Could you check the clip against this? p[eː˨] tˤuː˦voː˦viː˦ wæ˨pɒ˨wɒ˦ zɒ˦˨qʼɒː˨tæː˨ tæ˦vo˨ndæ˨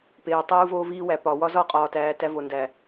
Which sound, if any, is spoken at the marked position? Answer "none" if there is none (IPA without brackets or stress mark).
eː˨